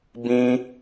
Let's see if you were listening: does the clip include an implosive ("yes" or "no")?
no